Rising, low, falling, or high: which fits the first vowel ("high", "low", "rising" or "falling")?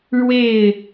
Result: falling